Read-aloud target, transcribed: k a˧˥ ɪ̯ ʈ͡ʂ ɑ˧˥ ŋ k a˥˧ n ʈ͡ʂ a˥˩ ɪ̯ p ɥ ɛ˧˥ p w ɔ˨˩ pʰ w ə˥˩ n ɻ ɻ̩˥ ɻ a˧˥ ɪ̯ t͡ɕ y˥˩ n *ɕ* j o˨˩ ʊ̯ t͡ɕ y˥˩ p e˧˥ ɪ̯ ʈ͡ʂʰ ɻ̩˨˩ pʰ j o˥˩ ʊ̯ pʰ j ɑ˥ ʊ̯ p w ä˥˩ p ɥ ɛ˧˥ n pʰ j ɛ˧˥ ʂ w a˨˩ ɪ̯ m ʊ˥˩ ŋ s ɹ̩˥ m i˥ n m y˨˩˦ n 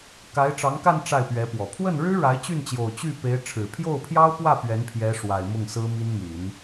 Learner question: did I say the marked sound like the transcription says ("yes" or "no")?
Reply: no